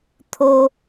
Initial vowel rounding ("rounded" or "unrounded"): rounded